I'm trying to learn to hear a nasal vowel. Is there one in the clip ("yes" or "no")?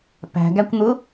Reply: no